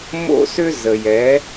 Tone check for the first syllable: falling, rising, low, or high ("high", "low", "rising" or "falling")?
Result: high